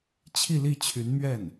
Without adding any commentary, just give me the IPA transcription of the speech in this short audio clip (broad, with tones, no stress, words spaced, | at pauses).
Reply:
t͡ɕʰi˥˧li˥˩t͡ɕʰy˧˥nmɥɛ˥˩n